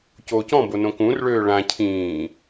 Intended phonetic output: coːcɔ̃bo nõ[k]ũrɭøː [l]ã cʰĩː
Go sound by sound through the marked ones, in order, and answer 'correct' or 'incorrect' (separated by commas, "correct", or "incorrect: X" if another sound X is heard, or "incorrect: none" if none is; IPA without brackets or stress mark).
correct, incorrect: ɭ